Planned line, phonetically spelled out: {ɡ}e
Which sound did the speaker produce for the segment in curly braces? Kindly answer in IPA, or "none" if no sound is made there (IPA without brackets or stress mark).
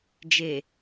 d͡ʒ